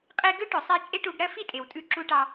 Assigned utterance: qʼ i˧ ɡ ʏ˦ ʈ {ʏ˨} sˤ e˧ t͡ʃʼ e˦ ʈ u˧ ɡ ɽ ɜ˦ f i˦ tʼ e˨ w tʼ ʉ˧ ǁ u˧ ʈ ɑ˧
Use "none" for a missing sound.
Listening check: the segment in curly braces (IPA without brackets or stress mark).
ʏ˨